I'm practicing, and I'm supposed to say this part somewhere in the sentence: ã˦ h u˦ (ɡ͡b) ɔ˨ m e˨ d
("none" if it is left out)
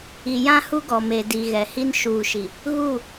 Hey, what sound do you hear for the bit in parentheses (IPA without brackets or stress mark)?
ɡ